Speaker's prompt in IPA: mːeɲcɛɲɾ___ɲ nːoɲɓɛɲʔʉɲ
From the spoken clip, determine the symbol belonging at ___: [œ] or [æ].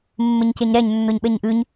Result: æ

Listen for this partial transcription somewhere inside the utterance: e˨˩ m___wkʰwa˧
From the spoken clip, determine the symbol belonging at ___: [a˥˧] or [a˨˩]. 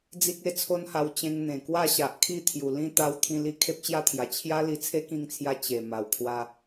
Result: a˨˩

